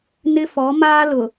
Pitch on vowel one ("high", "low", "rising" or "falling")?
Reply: high